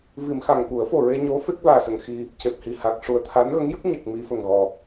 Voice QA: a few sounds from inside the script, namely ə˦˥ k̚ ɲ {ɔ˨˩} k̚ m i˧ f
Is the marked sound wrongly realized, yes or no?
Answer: yes